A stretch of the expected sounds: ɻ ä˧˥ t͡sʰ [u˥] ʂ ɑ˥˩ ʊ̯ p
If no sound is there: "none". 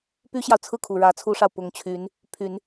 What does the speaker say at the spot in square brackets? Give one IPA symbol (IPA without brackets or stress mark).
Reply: u˥